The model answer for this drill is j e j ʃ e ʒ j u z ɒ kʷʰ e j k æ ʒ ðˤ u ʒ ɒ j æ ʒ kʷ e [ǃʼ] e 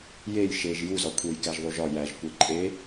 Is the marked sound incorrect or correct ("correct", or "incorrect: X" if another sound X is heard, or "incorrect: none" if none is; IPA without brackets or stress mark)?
correct